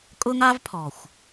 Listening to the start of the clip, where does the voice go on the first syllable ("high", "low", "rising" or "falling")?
high